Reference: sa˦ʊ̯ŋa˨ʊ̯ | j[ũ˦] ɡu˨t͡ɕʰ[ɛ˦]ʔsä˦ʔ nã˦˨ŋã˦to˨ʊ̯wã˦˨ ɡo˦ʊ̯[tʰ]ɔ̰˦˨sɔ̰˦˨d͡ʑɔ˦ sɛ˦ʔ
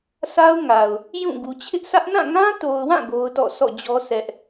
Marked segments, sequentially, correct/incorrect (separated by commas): incorrect, incorrect, incorrect